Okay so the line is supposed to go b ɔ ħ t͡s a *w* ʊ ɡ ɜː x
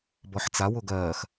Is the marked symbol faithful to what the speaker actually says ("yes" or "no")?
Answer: yes